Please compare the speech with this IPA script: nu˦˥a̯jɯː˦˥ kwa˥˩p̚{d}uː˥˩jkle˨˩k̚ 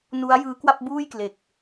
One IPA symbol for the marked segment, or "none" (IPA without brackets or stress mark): b